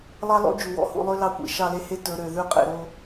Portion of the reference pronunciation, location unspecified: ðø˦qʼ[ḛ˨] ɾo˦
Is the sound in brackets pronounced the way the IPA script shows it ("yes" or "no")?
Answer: yes